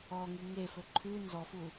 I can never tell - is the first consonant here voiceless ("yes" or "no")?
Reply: no